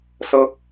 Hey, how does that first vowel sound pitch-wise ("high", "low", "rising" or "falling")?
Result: high